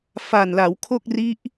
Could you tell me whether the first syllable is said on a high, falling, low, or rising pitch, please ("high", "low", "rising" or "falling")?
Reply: low